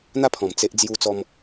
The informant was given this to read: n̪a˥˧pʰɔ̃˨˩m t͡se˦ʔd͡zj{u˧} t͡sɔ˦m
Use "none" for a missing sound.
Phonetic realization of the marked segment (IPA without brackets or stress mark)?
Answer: u˦